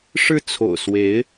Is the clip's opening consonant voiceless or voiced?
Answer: voiceless